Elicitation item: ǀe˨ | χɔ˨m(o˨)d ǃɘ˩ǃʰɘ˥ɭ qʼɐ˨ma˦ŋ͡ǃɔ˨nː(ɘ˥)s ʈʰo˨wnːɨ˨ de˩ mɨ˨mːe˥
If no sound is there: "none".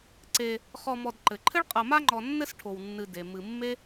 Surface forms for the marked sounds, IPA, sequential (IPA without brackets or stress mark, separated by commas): ɔ˨, ɘ˦